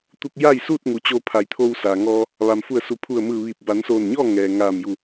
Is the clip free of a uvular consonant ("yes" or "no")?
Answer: yes